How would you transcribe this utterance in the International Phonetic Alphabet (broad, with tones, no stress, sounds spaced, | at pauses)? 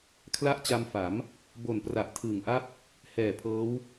kʰ l a˥˩ ʔ t͡ɕ a˧ m f a˩˦ m | b o˨˩ n p r a˨˩ ʔ tʰ ɯː˨˩ ŋ ʔ a˥˩ p̚ | h ɛː˨˩ pʰ ɤː˦˥ w